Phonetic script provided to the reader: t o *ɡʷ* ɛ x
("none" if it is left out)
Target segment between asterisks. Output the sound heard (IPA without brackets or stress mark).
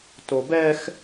b